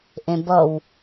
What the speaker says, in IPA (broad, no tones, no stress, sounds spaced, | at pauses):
ʔ ẽ b ʌ w